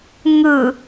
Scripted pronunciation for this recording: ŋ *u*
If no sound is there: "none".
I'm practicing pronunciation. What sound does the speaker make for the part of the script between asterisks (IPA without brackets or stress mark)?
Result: ɯ